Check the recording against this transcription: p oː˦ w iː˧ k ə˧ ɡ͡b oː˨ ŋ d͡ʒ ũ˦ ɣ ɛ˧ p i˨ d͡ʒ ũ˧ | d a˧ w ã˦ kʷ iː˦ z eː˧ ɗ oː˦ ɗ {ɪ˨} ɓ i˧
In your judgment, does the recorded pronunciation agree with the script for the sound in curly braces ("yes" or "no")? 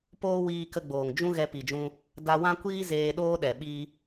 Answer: no